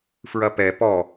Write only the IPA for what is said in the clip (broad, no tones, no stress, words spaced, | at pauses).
fɹɐpɛ pɔ